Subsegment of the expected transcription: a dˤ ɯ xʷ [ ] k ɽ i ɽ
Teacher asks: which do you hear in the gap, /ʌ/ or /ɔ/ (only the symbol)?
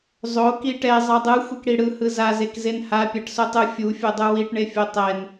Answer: ʌ